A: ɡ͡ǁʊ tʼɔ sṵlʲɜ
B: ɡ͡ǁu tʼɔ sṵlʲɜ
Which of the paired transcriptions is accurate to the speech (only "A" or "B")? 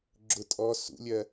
A